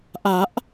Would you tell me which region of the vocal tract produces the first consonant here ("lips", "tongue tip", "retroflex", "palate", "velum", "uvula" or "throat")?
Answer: throat